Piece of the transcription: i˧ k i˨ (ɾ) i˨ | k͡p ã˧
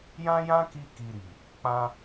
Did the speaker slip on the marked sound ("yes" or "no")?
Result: no